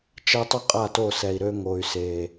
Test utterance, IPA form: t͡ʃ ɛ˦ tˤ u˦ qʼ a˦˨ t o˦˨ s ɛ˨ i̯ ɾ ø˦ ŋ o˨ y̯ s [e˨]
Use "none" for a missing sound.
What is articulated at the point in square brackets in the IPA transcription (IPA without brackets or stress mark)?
e˨